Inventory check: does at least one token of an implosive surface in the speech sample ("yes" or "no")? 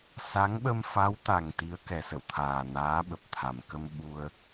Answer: yes